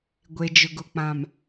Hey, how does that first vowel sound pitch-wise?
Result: low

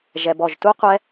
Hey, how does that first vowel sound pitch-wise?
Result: low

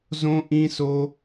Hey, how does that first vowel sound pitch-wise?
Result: high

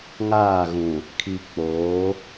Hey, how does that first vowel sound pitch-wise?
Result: falling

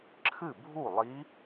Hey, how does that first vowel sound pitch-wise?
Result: falling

